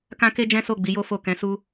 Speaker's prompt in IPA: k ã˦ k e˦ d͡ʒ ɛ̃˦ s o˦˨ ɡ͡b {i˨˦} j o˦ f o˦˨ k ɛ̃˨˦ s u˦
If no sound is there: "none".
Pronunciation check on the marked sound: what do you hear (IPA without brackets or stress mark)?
i˨˦